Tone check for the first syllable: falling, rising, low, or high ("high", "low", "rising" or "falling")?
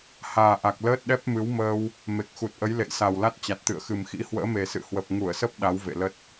low